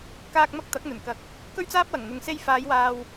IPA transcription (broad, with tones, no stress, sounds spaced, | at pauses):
k aː˧ k̚ m ɐ˥ k̚ t̪ ɐ˨˥ k̚ n̪ ɵ˨˩ n k ɐ˨˥ k̚ | k ɵ˥ ɥ t͡s aː˥ p̚ w ɐ˨˩ ŋ n̪ ʊ˨ ŋ s e˧ j f aː˨˧ j w aː˨ w